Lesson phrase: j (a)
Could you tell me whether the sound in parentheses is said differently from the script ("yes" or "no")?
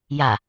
no